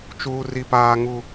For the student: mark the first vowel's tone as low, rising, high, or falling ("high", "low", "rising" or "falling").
high